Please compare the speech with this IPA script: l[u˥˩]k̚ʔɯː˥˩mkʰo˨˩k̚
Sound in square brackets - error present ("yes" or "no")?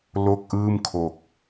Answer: yes